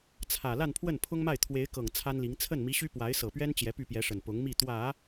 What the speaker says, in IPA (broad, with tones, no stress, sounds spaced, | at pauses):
t͡sʰ ä˨˩ l a˥˧ n pʰ w ə˥˩ n pʰ ʊ˥ ŋ m a˥˩ ɪ̯ t̪ʰ w e˧˥ ɪ̯ k ɤ˨˩ ŋ t͡sʰ a˥ n l i˧˥ ŋ t͡sʰ ə˥˩ n m i˧˥ ɕ y˥ p w a˧˥ ɪ̯ s ɤ˨˩ p ɥ ɛ˥ n t͡ɕ j ɛ˧˥ p y˥˩ p j ɛ˧˥ ʂ ə˨˩ n p ʊ˧˥ ŋ m i˥˩ t̪ w ä˨˩˦